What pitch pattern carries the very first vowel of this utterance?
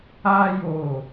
high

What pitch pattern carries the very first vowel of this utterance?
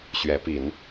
rising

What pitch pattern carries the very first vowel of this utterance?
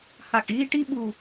low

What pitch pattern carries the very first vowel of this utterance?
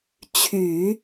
low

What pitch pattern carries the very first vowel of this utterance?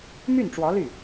falling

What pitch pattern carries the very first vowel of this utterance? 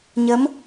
rising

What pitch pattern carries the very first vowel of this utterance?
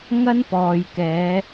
high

